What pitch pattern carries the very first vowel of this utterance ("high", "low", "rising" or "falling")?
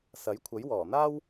rising